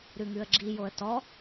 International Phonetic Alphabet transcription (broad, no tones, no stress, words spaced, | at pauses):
ɾʉŋʉə̯ɡ͡ǁijoə̯ tɔ